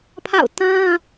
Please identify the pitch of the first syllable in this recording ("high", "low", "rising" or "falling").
falling